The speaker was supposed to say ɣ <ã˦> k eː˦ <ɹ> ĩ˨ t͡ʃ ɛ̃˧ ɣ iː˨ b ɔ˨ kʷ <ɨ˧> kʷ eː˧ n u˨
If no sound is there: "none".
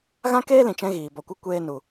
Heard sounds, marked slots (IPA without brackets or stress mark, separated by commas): ã˦, l, ɨ˧